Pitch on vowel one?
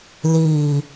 low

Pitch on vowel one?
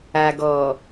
low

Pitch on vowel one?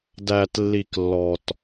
low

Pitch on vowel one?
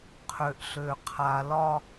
low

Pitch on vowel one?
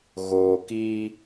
low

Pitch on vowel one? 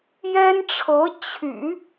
high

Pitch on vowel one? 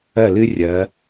falling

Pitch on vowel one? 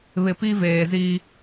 low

